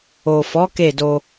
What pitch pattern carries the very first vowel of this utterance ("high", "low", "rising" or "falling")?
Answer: low